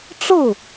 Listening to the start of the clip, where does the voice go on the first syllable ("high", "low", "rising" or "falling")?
falling